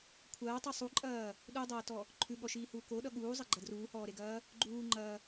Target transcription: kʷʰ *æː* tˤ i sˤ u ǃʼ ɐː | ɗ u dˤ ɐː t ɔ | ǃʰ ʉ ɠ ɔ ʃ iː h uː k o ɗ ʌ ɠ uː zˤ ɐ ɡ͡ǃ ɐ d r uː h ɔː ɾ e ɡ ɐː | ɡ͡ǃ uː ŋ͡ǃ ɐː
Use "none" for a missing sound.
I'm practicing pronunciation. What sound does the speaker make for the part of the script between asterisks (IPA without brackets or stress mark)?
ɐː